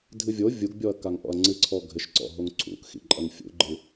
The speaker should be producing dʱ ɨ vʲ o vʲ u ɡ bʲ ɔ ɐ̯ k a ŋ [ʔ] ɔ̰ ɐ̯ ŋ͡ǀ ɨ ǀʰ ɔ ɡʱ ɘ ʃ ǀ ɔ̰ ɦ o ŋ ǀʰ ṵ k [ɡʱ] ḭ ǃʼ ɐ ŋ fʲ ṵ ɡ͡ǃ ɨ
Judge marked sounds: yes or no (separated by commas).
yes, no